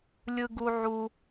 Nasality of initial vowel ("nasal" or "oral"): oral